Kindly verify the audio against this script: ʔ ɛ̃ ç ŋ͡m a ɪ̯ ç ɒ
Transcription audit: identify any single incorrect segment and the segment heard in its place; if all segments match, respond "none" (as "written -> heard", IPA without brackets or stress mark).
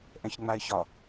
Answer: none